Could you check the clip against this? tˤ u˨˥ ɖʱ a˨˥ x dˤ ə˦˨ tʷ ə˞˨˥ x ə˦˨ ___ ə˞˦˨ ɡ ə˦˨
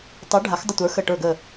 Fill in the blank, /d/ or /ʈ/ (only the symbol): ʈ